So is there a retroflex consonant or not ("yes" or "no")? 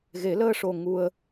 yes